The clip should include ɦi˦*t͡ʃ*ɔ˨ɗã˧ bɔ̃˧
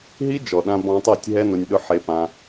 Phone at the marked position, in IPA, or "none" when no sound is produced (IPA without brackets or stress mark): d͡ʒ